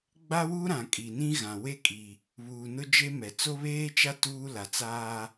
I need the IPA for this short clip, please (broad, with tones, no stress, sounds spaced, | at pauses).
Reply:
ɡ͡b a˦ w u˦ ɾ ã˨ kʼ i˨ n ĩ˦ ɣ ã˨ w e˦ kʼ i˨ | β uː˨ n ʊ˦ d͡ʒ e˦ m ɛ˨ t͡s o˦ β eː˦ t͡ʃ a˦ t uː˦ l a˨ t͡s aː˦